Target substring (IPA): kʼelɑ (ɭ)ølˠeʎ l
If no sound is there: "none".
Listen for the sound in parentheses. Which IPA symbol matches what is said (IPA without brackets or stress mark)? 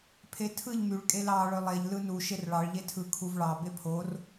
ɭ